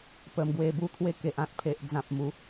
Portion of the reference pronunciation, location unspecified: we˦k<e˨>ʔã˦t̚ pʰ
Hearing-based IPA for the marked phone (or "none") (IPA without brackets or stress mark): e˨